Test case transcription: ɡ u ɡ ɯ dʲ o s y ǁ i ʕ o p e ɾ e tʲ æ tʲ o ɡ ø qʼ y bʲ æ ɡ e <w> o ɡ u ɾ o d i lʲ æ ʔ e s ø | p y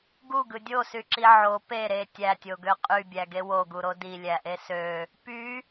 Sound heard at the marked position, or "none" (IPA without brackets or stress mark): w